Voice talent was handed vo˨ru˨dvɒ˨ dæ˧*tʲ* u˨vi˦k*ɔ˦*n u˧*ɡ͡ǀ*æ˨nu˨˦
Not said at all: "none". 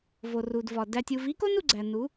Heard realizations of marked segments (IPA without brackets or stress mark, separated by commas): tʲ, o˦, ɡ͡ǀ